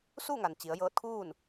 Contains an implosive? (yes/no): no